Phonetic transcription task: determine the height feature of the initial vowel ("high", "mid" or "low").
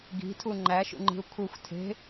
high